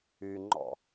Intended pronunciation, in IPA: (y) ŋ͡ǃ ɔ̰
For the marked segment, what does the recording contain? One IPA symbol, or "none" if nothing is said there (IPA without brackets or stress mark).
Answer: y